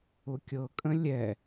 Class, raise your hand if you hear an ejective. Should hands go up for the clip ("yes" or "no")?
yes